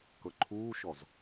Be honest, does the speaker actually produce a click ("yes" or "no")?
yes